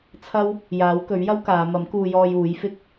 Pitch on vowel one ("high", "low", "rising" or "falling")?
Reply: high